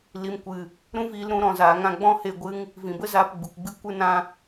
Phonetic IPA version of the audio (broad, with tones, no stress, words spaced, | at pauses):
li˨mkʷɨ˨ | ɾũ˦viː˧lɾũ˨˦ ɾɔ̃˨zaː˨ŋã˧ ɡ͡bɔ̃˦he˧ɡʷɨ˦ŋ | vĩ˨bə˦zaː˧p ɡ͡bu˨kɡ͡bɨ˦ kʷɨ˦nã˦